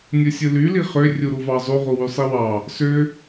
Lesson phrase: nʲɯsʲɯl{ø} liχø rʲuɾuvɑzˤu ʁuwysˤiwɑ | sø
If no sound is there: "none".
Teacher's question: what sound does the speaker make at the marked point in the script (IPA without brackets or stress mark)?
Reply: y